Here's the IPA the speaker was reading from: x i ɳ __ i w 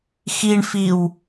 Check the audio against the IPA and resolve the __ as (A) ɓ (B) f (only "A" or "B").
B